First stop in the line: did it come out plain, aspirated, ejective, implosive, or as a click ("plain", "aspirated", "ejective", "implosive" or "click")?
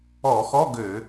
plain